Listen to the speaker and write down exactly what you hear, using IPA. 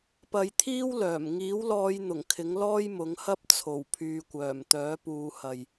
p ɐ˨˧ j t̪ʰ iː˥ w l œː˨˩ m ŋ iː˨˥ w l ɔː˨˧ j n̪ ʊ˨˩ ŋ kʰ ɪ˨˥ ŋ l ɔː˥ j m ʊ˨˥ ŋ h ɐ˥ p̚ t͡sʰ o˨˩ w pʰ yː˨ kʷ œː˨˩ m t̪ œː˨˥ p uː˨˧ h ɐ˨ j

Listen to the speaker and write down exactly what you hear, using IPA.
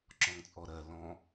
ǁ ɔ̃ ŋ t͡sʼ ɔ ɾ ɜ l ɔ̃

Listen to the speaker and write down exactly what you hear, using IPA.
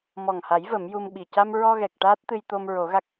m ɔ˨˩ ŋ h a˨˩˦ j v ə˨˩˦ m j u˧ m ɓ i˨˩ c a˧ m ɹ ɔ˧ ɣ ɛ˨˩ k̚ ʈ aː˦˥ t̚ t̪ ɨ˧ j t̪ o˧ m ɹ o˨˩˦ ɣ a˦˥ k̚

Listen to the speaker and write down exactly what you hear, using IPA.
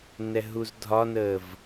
n ɛ ɦ u z dʱ ɒ n əː v

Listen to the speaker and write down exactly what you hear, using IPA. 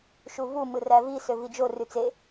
ʃ u v u m ɯ r æ v i s ø v i d͡ʒ o r y t͡s e

